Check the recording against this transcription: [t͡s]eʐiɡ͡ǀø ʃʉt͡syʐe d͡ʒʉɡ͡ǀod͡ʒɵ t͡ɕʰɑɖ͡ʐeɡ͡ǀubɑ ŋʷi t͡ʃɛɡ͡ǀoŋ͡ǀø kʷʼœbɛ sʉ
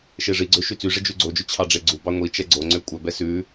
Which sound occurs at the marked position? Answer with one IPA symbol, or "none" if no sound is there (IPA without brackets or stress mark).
ʃ